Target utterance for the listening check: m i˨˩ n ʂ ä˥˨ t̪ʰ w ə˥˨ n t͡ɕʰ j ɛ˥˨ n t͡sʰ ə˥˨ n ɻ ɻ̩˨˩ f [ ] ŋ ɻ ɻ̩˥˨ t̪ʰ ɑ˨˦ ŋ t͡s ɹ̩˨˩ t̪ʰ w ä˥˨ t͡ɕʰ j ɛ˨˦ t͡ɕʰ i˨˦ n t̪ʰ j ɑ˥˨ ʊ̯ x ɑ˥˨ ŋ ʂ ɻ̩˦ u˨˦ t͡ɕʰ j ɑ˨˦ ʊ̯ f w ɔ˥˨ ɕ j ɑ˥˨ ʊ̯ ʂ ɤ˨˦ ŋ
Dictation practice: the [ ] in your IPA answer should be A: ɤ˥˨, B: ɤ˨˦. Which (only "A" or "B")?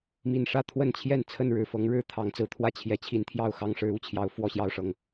B